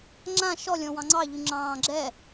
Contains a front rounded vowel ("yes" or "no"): yes